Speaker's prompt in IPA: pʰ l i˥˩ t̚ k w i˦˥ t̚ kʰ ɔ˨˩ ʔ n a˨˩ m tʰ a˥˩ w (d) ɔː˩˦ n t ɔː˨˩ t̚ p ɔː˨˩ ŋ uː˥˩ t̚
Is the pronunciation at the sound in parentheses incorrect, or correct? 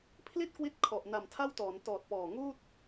incorrect